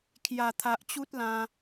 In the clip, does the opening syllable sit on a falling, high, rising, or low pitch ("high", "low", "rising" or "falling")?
low